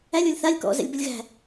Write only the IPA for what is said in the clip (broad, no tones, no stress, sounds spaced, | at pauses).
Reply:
æ lʲ ɔ lʲ θ a lʲ k ɔ̰ z ɛ̰ lʲ b ə lʲ ɣ æ̤